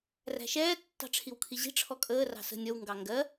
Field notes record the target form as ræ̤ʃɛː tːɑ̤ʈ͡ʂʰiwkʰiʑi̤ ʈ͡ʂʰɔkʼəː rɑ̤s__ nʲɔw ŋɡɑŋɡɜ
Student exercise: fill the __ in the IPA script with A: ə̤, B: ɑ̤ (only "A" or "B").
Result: A